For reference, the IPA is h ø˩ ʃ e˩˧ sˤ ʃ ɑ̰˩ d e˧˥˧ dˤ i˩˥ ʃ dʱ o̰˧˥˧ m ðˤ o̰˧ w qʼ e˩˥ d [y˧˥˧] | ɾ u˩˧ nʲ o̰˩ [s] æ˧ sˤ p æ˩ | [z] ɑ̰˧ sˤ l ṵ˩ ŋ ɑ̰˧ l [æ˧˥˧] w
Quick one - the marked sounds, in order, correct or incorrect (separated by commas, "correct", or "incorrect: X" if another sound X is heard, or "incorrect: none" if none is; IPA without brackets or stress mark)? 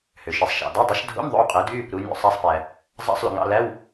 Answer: correct, incorrect: sˤ, incorrect: zˤ, correct